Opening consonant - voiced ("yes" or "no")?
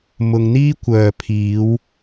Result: yes